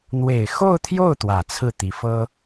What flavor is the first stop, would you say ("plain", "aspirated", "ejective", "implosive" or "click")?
aspirated